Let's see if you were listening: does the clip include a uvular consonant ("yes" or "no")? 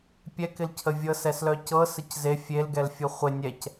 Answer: yes